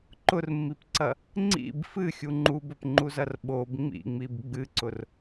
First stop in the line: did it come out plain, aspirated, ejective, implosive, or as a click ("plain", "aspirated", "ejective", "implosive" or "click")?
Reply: click